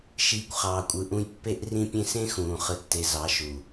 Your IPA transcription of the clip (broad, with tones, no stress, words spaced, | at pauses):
ʃiː˨kʷ χɑː˨kʷʼɯ˨ʔũ˧j pːe˧ʔ rĩ˧pʲẽ˧ sẽ˦xũː˨ χɯ˨tːe˨ zɑ˨˦ʃu˨